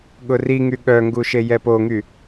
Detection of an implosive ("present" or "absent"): present